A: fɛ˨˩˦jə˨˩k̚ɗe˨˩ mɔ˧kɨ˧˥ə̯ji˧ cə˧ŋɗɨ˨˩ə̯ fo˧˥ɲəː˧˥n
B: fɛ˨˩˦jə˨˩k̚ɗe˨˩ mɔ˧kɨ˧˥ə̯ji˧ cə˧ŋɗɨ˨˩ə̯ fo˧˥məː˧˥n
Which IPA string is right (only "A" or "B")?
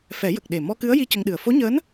A